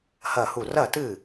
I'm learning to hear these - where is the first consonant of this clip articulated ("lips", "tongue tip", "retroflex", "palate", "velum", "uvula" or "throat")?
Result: throat